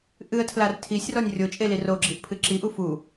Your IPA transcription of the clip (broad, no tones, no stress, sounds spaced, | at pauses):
ʔ ɨ ə̯ tʰ l a r tʰ i sʲ r ɔ nʲ rʲ o t͡ʃʼ e l i r o ɡ͡ǁ i ʔ pʰ ɨ ǁ i ʔ u f u